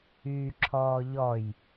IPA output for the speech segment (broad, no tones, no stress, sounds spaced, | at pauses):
yː ǁʰ ɔː ʎ ɔ j